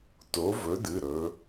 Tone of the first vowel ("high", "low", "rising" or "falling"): rising